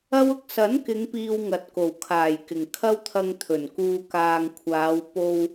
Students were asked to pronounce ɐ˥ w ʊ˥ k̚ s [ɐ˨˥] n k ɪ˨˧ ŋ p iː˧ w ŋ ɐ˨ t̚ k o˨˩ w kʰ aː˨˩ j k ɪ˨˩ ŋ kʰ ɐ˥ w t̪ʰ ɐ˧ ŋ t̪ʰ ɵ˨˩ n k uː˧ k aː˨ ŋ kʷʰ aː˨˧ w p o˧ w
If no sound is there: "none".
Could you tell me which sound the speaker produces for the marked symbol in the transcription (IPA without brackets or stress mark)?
ɐ˨˥